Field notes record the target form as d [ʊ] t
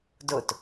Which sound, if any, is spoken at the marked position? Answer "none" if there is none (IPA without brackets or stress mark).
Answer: ʊ